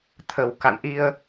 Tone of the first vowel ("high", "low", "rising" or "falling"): low